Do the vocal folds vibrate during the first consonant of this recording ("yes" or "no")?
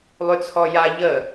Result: yes